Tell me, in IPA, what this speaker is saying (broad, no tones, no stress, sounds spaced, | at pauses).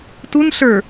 t u n ɬ ə˞